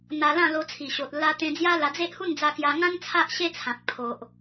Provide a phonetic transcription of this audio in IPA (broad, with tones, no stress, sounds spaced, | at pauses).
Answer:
n̪ a˧ l ã˥˧ l o˧ t͡sʰ i˨˩ ɕ o˨ t̚ l a˧ t̪ ẽ˧ d͡z j a˦ l a˧ d͡z e˦ ʔ h u˥˧ n d͡z a˧ k j a˧ ŋ ã˦ n t͡sʰ a˦ ʔ ɕ e˦ t͡sʰ ã˨ k̚ pʰ o˨ ʔ